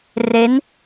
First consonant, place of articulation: alveolar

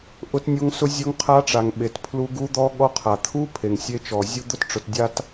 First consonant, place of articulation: glottal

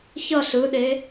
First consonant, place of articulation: palatal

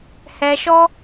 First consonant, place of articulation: glottal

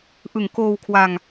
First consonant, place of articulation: glottal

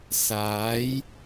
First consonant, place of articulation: alveolar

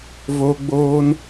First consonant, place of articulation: labial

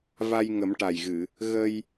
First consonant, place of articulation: labial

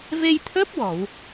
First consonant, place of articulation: labial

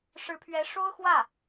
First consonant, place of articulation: retroflex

